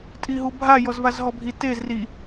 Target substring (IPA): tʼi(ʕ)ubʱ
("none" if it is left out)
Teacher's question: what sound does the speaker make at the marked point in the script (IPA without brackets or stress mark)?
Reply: ɦ